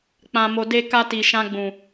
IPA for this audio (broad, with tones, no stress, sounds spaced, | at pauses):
k͡p ã˨ m o˨ d e˧ k a˧ t i˨ ʃ ã˧ ɡ͡b ũ˨